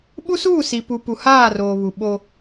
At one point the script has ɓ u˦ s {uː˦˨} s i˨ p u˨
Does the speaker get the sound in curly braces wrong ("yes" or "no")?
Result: no